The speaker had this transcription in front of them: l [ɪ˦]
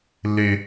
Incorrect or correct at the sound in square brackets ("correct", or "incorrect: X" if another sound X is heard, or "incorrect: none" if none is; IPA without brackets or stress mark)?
correct